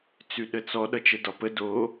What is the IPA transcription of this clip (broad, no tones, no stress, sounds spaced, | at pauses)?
t͡s ʉ ɗ ə t͡s ɔ ɗ ʌ t͡ʃ ə d ɒ p ə d o